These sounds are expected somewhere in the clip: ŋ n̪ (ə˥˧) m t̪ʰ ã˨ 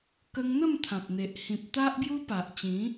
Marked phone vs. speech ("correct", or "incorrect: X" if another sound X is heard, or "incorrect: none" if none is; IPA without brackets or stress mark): correct